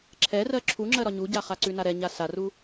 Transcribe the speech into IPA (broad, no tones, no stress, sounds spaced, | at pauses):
ǁʰ ɛ r ɜ ǁʰ u ŋ͡ǁ ɜ ɾ ɒ ɲ u ɟ a χ a ǀ ʉ n a ɾ ɛ ɲ a s a r u